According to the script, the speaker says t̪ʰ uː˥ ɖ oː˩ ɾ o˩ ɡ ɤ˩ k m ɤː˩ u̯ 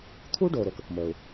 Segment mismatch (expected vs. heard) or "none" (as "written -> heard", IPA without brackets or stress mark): ɡ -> k